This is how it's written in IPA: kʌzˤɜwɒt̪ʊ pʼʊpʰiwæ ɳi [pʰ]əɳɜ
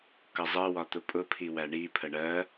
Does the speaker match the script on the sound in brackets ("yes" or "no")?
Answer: yes